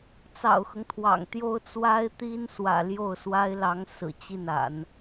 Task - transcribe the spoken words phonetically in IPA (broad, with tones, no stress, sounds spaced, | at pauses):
t͡s ɑ̰˨˩ ʊ̯ x ɤ˦ ŋ t̪ʰ w ɑ̰˨˩ ŋ t̪ j o˥ ʊ̯ t͡s w a˥ ɪ̯ t̪ i˥ n s w ä̰˨˩ l j o˥˩ ʊ̯ s w a˥ ɪ̯ l ɑ˧˥ ŋ s ɹ̩˨˩ t͡ɕ i˥˩ n a̰˨˩˦ n